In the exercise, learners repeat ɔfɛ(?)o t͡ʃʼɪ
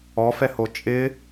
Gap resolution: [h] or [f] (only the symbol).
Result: h